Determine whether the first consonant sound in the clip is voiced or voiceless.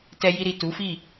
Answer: voiceless